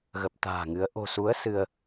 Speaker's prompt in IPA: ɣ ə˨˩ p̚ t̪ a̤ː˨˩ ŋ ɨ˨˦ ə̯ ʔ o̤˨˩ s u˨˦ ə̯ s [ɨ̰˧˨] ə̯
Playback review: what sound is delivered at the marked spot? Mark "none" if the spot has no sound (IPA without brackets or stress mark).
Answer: ɨ˧